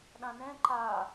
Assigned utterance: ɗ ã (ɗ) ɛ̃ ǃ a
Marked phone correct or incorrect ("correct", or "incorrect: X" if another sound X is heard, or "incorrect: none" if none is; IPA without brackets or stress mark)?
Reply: incorrect: n